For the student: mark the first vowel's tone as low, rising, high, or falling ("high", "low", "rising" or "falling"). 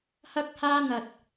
high